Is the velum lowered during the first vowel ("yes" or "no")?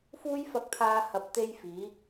no